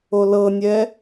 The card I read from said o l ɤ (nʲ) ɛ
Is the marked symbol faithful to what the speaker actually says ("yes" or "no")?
yes